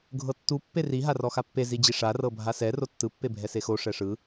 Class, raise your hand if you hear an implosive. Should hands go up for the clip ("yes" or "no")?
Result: no